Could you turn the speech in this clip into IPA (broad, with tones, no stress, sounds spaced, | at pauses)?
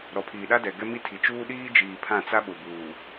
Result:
ɾ ɔ˨ pʰ iː˨ ɗ a˦ d ɛ˨ ɡ ɛ˦ m i˦ tʰ i˨ t͡ʃ uː˦ ɗ iː˦ d͡ʒ iː˨ pʰ ã˦˨ t͡s a˦ ɓ ʊ˨ b uː˨